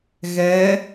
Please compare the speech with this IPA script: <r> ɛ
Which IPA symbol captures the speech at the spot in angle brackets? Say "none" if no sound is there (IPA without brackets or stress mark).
ɣ